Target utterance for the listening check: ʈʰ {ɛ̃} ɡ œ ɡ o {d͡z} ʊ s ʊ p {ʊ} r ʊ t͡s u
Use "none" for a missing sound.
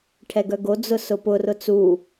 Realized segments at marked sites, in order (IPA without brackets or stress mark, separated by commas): ɛ, d͡z, ʊ